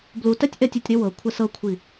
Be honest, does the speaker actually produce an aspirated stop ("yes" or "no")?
yes